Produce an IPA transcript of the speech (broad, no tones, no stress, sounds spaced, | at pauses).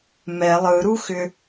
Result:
m ɛ lˠ ɯ ɾ u x ʏ